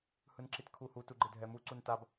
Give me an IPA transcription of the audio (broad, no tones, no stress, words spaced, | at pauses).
hɯnǁitkʰuhu tuɡ͡ǃedʱɛmu ǀuntab